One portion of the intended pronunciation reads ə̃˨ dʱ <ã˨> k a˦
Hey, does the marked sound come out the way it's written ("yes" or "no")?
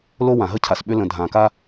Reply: yes